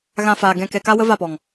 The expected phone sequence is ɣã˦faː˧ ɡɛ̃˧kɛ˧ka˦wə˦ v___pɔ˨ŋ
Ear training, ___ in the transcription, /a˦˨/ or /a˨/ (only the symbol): a˦˨